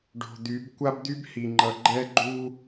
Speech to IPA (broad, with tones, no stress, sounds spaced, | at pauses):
ɖ o̤˨ d̪ y˨˦ b kʷ a˦ b d̪ y˦ b h i˨ ŋ͡ǃ ʌ˨ ɡ͡ǃ ɛ˦ ɡ͡ǃ u˦